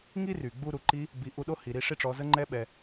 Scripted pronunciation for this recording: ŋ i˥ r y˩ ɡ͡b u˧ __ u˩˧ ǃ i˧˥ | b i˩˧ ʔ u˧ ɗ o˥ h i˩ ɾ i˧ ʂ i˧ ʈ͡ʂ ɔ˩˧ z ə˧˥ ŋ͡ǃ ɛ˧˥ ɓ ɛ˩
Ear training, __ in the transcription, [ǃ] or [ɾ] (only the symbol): ɾ